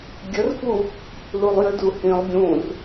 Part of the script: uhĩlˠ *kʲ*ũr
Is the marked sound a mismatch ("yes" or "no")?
yes